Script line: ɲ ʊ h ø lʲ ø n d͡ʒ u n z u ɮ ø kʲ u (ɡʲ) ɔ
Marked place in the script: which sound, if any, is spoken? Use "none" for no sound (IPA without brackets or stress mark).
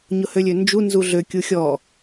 xʲ